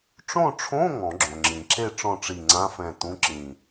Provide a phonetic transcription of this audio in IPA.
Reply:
ʈ͡ʂõ˥˨ʈ͡ʂʰõ˧˥˧ ŋɔ̃˨˩˦ɡ͡ǁõ˩ŋ͡ǁĩ˩ ǁe˥˨ ʈ͡ʂɔ̃˥˨ʈ͡ʂi˧˩ ŋ͡ǀã˧˥˧fɛ̃˧˩ tũ˧˥˧ǁĩ˧˩

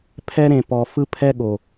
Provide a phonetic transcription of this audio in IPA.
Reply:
pʰɛ˦ɾẽ˨pɔ˨ fɯ˦ pʰɛ˦ɠo˨

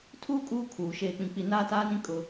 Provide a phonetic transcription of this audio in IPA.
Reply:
tʰuː˦ kʼuː˦kʰuː˨ ʃeː˨k͡pĩ˨k͡pi˨ naː˦taː˦nĩ˦ kʼʊ˦

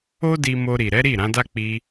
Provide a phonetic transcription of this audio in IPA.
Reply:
o˦ di˧mo˧ɾi˨ ɾɛ˨˦ɾi˦˨ ɾã˨˦da˦ k͡pi˧

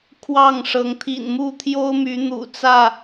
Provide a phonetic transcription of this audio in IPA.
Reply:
kʰwɑ˥˨ŋʂɤ˨˦ŋ t̪ʰḭ˨˩nmu˥˨t̪ʰjo˦ʊ̯my˨˦ n̪ṵ˨˩t͡sä˥˨

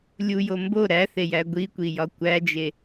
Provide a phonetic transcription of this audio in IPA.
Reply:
lʲujo mbo ɾæθejæ ɡʷikʷijɒ kʷæd͡ʒe

